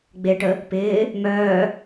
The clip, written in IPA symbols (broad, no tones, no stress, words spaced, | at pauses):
ɡ͡beʈə | pɪː | mœː